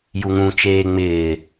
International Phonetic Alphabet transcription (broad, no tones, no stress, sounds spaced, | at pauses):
j u ŋ ũ t͡ʃ eː ŋ͡m ɪː